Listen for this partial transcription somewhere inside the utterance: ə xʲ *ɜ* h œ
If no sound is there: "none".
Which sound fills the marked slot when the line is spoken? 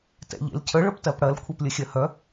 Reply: ɜ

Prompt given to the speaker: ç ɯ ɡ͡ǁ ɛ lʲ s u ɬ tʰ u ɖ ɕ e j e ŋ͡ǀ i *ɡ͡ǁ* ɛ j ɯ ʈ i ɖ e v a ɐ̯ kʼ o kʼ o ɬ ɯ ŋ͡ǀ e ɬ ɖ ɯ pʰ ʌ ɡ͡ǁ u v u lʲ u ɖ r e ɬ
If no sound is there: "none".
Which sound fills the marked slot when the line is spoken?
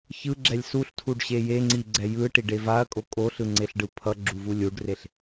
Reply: ɡ͡ǀ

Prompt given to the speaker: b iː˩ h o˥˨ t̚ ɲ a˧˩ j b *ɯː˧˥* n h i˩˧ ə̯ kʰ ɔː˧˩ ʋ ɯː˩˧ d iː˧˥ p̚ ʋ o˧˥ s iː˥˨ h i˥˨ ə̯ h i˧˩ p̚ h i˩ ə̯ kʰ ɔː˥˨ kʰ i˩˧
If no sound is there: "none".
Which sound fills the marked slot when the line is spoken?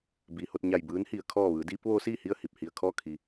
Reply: ɯː˧˥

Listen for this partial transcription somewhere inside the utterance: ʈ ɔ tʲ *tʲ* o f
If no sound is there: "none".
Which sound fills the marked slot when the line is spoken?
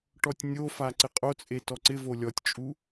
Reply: nʲ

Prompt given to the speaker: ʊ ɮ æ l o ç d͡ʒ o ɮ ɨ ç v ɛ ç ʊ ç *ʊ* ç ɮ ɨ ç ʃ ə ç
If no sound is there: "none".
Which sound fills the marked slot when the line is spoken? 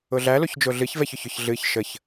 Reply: ʊ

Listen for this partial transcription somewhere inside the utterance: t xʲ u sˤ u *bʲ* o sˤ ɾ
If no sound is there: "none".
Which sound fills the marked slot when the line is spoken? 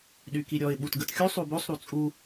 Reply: b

